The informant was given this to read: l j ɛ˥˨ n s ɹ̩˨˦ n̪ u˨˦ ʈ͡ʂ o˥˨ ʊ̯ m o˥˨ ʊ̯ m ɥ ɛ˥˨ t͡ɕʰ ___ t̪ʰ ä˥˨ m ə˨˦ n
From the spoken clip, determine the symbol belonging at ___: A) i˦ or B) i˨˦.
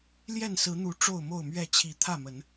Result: B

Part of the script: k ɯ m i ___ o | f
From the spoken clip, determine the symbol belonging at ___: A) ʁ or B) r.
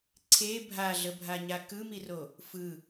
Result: B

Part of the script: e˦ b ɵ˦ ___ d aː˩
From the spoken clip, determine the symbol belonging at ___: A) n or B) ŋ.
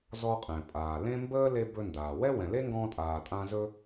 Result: A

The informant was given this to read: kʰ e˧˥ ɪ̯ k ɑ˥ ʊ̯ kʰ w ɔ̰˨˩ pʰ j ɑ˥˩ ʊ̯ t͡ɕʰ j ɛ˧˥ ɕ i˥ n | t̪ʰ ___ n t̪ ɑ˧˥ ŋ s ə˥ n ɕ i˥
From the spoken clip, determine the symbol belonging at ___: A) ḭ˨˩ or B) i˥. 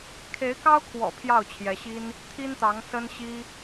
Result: B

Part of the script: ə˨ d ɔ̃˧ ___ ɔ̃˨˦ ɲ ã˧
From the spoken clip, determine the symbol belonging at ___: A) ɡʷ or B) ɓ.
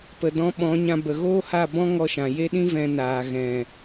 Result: B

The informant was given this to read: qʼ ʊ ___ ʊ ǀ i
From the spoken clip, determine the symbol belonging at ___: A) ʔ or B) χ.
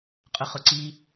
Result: B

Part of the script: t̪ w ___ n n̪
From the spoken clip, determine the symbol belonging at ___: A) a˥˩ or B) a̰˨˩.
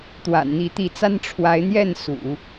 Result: B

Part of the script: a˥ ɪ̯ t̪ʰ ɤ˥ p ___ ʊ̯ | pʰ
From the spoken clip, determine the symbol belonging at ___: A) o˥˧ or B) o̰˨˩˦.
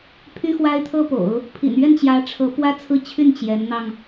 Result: B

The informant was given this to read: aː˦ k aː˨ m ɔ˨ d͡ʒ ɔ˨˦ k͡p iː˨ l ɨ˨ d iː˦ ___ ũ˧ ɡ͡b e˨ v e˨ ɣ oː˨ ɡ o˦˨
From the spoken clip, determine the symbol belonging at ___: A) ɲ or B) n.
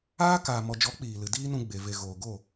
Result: B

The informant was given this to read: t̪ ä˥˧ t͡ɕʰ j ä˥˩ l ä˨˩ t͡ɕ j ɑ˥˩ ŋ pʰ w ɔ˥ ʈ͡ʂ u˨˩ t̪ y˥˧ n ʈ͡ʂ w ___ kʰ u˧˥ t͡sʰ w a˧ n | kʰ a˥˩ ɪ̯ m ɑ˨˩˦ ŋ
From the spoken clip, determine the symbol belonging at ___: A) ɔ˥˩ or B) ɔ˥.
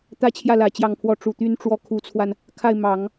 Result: A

